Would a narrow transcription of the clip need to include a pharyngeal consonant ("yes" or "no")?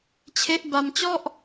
no